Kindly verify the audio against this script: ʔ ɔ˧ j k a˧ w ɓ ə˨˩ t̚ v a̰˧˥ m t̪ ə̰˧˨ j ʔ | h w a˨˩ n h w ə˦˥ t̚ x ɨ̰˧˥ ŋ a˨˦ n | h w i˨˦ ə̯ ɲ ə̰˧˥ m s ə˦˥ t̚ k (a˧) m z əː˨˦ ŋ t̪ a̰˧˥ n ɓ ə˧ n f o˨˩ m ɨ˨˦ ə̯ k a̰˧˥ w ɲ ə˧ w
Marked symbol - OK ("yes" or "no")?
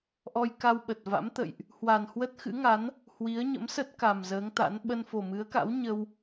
no